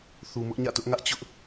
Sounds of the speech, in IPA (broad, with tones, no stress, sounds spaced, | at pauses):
θ u˨ m ʊ˦ ʔ ɲ ä̰˦˨ t ʊ˦ ʔ ŋ ä˦ ʔ t͡ɕ ʊ˦ ʔ